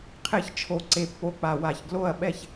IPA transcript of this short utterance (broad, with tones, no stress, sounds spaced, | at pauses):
qʰ e˥˩ ç t͡ʃʰ o˧˩ ǀ e˧˩ pː o˧˩ k͡p a˧˩ w a˧˩ ç ɡ l o˥˩ ɐ̯ ɓ ɛ˥˩ ç